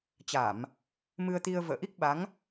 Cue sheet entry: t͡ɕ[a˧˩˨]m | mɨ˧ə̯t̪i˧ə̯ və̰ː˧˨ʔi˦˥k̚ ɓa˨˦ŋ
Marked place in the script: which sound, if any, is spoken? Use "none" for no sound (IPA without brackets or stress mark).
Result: a˧˩˨